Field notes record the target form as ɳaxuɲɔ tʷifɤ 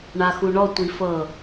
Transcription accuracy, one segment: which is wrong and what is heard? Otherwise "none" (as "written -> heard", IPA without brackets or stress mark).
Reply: ɲ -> ɳ